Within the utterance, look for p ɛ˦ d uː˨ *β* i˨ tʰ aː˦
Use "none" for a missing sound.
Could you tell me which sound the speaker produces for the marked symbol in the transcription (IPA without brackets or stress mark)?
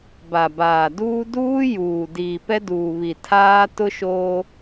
β